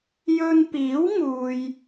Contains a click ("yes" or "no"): no